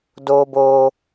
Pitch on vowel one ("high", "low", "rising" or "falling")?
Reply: high